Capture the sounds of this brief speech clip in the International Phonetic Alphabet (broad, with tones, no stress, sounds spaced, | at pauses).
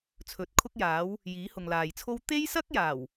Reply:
t͡sʰ ɵ˨˥ t̚ kʰ ʊ˥ k̚ j aː˨˥ w | j iː˨˥ h ʊ˨ ŋ l aː˨ j t͡sʰ o˥ w t̪ e˥ j s ɐ˥ k̚ j aː˨˩ w